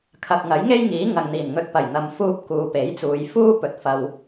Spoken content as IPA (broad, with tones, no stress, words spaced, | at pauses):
kʰɐ˨k̚ŋɐ˨˥j ŋe˥jŋiː˨˥ ŋɐ˨ŋn̪iː˨˩n ŋɵ˧t̚pɐ˨˩j n̪ɐ˨mfuː˧p̚ kuː˨˧pe˨˥jt͡suː˨˧j fuː˥ pɵ˨t̚ fɐ˧w